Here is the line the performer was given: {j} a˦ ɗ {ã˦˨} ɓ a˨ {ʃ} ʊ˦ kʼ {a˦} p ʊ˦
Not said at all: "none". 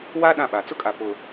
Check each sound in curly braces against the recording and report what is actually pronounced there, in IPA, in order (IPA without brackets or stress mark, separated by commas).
w, ã˦˨, t͡s, a˨